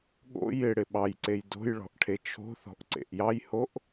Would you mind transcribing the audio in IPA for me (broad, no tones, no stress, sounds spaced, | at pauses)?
ɠ o̰ j ɪ ɽ ɪ ɓ ɑ j ǀ e j d o̤ j ɭ ɔ̤ ʔ ʈʰ e t͡ʃʰ o̤ θ ɔ̤ ʔ ǀ ḛ ʔ j ɑ j h o ʔ